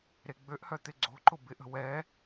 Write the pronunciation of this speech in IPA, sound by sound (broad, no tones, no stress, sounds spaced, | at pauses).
ɾ e ɡ͡b ø ʔ h œ t̪ ɪ ɡ͡ǀ o̤ ǃ ʊ b ɪ ʔ ə̤ w ɛ